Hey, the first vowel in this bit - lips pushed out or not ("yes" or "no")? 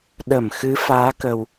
no